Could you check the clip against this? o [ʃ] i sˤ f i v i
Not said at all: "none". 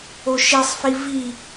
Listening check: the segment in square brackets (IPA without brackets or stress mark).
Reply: ʃ